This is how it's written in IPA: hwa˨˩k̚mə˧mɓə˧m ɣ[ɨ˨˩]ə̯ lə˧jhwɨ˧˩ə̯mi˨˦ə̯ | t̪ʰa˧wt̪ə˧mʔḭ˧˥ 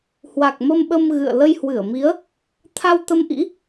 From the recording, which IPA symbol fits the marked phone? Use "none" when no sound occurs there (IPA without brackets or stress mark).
ɨ̰˧˨